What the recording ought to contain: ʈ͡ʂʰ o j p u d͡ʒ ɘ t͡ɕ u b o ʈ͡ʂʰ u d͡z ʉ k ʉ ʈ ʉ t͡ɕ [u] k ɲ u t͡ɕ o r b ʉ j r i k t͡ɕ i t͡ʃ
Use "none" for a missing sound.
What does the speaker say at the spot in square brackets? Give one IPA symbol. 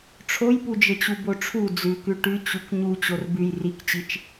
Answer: u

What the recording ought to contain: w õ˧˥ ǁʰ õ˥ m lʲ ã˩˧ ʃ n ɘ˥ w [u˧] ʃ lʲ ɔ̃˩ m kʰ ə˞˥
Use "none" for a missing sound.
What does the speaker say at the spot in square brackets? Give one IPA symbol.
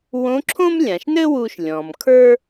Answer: u˧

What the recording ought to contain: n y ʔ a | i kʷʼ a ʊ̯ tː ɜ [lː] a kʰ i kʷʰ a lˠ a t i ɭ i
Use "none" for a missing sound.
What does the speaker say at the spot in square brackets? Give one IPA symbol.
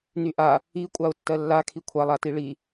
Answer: lː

